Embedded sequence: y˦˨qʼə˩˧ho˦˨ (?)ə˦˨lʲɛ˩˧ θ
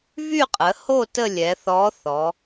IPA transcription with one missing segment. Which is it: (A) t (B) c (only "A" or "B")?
A